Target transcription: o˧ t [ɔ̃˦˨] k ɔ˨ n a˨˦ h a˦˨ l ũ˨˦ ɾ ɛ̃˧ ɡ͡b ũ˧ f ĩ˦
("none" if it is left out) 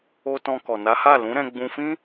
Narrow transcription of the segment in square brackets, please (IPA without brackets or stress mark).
ɔ̃˧